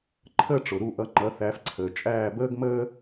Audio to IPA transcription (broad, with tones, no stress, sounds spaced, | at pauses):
ǃʰ əː˥ ʈ͡ʂ ʊ˩ ɾ u˥˩ ʔ ʌ˩˥ ŋ͡ǃ ʌ˩˥ θ æ˩˥ f ǀʰ əː˩ t͡ʃʼ æː˥˩ b əː˥ ɡ m əː˥